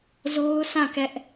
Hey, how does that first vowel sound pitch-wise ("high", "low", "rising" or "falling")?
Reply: high